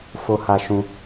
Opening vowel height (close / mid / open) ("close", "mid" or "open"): mid